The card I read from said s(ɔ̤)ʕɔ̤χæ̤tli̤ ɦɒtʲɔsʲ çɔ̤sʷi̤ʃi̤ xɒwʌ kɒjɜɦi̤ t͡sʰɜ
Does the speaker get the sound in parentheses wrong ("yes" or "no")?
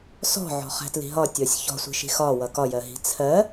no